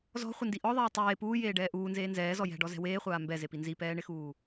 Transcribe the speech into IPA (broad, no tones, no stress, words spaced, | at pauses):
zɔ̤χʷɪndi ʔɔðˤɛː tˤeː puːjeːɖɛː ʔuːnzeː nzɛːzɔ jɛ̤ɖɔzɛ̤ weːχʷaː mbɛzepi nzipɛːɳɪxuː